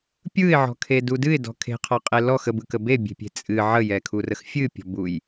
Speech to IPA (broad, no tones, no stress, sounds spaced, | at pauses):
pʲ ɯ ɪ̯ ʕ ɔ̤ kʰ e d u d ɨ ɪ̯ d ɔ̤ kʰ e̤ qʰ ɔ qʼ e l ɔ x ə b ɯ k ə b e bʲ e̤ pʲ e̤ t͡sʼ ɨ ʕ ə j ɛ kʰ u r ə x fʲ ɨ pʲ ɔ̤ b u j